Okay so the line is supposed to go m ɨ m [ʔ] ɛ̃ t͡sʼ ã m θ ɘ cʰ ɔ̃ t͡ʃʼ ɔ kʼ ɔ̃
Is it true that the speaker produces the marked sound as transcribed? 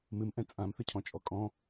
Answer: yes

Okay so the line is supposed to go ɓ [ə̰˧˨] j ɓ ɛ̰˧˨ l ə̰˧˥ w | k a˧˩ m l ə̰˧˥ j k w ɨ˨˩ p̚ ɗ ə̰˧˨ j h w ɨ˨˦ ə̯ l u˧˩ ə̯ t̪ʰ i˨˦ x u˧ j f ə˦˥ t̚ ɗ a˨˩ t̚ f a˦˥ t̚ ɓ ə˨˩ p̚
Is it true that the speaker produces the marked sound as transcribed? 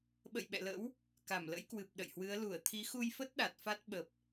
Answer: yes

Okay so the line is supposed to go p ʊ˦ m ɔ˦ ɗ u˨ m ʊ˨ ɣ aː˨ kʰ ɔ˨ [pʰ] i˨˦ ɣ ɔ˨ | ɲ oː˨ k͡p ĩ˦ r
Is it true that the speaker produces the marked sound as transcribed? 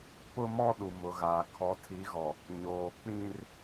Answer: no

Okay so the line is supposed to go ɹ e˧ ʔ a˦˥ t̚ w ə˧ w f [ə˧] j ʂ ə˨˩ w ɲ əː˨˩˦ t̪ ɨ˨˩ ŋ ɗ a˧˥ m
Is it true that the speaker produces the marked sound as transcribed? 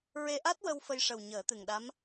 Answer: yes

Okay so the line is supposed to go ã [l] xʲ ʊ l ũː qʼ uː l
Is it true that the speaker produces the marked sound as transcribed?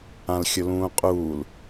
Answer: yes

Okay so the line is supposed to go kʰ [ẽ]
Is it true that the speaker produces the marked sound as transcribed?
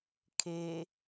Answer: no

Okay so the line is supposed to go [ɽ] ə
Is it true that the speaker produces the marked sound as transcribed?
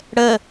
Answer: yes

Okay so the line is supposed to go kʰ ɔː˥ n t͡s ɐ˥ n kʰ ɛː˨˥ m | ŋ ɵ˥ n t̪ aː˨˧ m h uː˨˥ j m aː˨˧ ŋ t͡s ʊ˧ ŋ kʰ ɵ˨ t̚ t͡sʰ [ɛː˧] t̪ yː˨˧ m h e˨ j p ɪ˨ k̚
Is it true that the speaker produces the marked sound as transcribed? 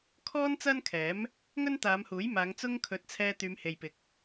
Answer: yes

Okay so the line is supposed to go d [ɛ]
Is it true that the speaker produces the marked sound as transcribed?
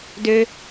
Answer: no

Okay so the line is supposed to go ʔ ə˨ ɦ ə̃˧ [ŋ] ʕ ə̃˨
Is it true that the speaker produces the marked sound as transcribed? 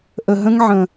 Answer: yes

